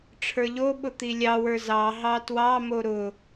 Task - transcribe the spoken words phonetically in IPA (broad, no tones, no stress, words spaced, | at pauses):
ʈ͡ʂʰə˞ʎoɓʊ t̪ilʲɑwə˞ zɑ ɦɑtwɑ moɾʊ